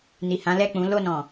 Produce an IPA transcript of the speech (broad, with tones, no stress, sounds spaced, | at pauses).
n i˨ h ã˨˦ l ɛ˦˨ k͡p ũ˨˦ l o˦˨ n ɔ̃˨